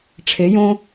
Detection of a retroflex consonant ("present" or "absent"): present